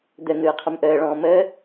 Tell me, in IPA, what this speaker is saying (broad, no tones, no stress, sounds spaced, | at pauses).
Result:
d̪ ə n̪ ɯː qʰ ə m ʔ əː ɭ ɔ̃ː m əː